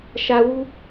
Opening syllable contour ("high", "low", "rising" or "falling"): high